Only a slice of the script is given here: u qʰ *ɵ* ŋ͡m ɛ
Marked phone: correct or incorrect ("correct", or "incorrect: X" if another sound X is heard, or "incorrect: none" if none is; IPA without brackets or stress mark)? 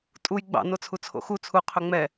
correct